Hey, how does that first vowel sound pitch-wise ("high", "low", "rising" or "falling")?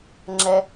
low